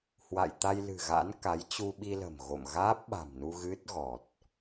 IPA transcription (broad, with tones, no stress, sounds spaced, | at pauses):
h w a̰˧˨ j t̪ a˧ j l ɨ̤˨˩ ɣ a̰˧˥ n k a˨˦ j t͡ɕ u˧ ɓ i˧ l ə̤˨˩ m ɣ o̰˧˨ m ɣ aː˦˥ p̚ ɓ a̤˨˩ m n u˧ ɣ ɨ˦˥ t̚ ɣ ɔ˨˩ t̚